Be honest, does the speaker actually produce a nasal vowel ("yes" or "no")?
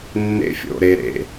no